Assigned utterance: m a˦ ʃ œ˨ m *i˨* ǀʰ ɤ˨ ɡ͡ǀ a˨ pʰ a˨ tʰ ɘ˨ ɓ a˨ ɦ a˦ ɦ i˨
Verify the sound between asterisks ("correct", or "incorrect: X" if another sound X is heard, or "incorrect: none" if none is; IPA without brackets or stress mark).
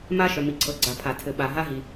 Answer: correct